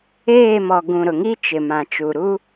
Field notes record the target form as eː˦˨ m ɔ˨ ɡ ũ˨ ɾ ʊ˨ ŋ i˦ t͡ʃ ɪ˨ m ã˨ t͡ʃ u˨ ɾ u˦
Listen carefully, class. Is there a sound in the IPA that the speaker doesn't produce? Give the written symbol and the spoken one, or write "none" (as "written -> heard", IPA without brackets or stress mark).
none